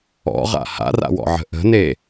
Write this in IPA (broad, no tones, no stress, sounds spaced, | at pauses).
ɔ̰ ʁ a̰ h a̰ r a̰ w ɔ̰ ʕ ə̤ ʔ ə̤ n e